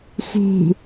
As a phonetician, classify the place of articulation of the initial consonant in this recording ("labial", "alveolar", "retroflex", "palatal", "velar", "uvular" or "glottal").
velar